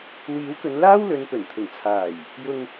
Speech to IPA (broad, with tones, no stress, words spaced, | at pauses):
wiː˨˥wkɵ˨˧n laː˥wlɵ˨˧npɵ˨˩n t̪ʰʊ˨˩ŋt͡sʰaː˨˩j | jʊ˨ŋ